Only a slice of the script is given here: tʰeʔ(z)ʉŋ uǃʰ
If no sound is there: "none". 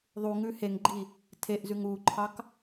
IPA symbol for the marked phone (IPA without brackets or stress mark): z